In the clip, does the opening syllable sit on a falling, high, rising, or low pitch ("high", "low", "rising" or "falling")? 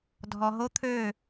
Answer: low